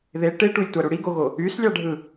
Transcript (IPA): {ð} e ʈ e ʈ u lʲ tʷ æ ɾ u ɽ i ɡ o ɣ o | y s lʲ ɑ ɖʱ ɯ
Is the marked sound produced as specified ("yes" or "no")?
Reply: yes